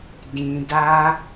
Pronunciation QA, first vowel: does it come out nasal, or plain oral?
nasal